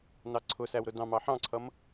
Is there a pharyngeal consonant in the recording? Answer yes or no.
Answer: yes